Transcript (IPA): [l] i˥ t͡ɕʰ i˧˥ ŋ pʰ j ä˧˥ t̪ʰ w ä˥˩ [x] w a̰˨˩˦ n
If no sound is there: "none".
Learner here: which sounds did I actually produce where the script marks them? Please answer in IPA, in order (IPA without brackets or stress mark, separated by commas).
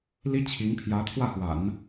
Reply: l, x